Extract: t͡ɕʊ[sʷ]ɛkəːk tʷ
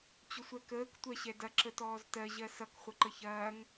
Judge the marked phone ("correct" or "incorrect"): correct